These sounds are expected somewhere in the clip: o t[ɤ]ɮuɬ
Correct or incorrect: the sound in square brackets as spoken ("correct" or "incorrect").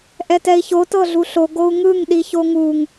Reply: correct